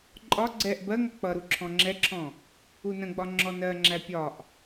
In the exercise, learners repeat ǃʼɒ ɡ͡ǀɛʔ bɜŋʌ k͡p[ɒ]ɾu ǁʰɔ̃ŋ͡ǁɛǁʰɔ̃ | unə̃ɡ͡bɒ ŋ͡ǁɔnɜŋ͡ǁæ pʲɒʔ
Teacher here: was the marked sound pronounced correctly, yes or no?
no